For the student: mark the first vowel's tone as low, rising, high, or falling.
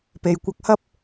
low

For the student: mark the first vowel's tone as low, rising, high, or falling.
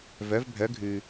rising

